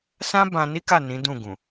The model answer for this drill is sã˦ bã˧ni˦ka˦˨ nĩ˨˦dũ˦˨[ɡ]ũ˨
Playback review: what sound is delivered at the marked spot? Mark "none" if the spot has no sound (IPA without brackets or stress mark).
ɡ